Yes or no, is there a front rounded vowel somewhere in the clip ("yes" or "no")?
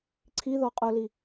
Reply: no